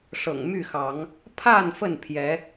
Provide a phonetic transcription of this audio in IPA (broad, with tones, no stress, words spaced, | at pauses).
ʂɤ̰˨˩ŋmy˥˨xɑ˨˦ŋ | pʰa˥˨n fə˥˨npʰjɛ˨˦